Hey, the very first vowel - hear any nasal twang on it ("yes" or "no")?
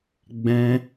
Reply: yes